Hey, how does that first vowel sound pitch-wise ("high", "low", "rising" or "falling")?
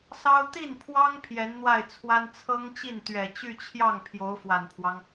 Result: high